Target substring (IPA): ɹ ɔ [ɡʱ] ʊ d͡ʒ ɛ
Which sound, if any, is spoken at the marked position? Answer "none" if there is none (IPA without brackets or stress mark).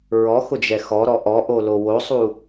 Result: x